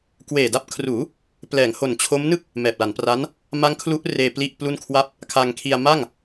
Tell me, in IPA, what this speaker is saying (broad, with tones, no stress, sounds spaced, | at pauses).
k w eː˨˩ d a˦˥ p̚ kʰ r uː˩˦ | p l ɛː˩˦ ŋ h o˨˩ n t͡ɕʰ o˦˥ m n ɯ˥˩ k̚ | m ɛː˨˩ p̚ l a˩˦ n p r a˦˥ n | m a˦˥ ŋ kʰ l u˦˥ ʔ r eː˧ p l i˥˩ ʔ p l u˥˩ n kʰ w a˥˩ p̚ | kʰ a˧ ŋ kʰ i˧ a̯ m a˥˩ ŋ